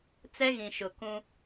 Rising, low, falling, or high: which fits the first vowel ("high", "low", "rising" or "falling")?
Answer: high